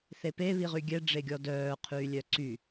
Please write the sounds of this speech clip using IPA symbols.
θepe βiʁyɡʲɛ ɖ͡ʐeɡʲɔdœː qʰyːlʲœǀy

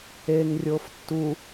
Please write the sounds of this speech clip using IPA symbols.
eŋrʲof tːu

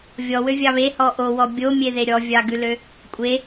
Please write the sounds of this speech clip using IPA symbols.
vʲɔwø vʲɑβe hɔʔowɔ bʲomʲeðe ɾʲɔvʲɑɡʉlø | kʷʼe

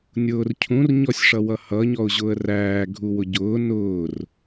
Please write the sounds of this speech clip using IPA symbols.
nʲʊːrcʰũr ɲɔsʲʂʌwʌhʌ ɲɔʊ̯ʑʊːə̯ræː ɡʱuwʊɟʊː nʊːr

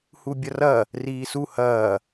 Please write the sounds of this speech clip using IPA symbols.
hubʲɐrɐ | riːsu hɐː

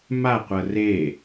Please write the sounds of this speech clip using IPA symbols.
maqʷɤ re

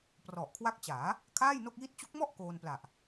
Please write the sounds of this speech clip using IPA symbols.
prɔ˨˩ʔkʰwa˦˥k̚t͡ɕaː˩˦ | kʰaː˥˩jno˥˩k̚ji˥˩t̚ t͡ɕu˦˥k̚mɔ˥˩ʔ koː˧npla˨˩ʔ

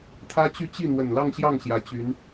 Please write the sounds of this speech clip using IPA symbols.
t̪ʰä˥t͡ɕy˥˧ t͡ɕi˥˩ n̪wə˨˩nlɑ˥˧ŋɕjɑ˥˩ŋ ɕjä˧˥t͡ɕy˧˥n

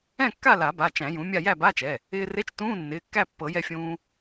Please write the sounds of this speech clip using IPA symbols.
ɛ̃˥˨kːa˥˨la˨˩˦ba˩˧˩ t͡ʃæ̃˨˩˦jũ˩˥mʲa˥˨ jæ˥˨ba˧˥˧t͡ʃɛ˩˧˩ | ɪː˧re˧˥˧t͡ʃ tũː˧˥˧nːɪː˩˧˩kːæ˥˨pːɤ˨˩˦ jɛ˧fʲũː˧

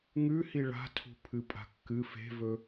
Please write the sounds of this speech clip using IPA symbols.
ŋʉhi ɭa̤ tʰṳpʰɨpʼa̤kːɨ fe̤vɵ

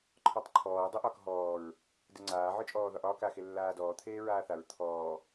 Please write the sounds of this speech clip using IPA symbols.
ǃʰɔtˤǃʰɔː dˤeʔɒːkɦɔːɹ | deŋ͡ǀaː ʕə˞t͡ʃʼɔːðɒʔɒːk axelːaːdɔː t̪ʰeːɹaːθaɹ t̪ʰɔː

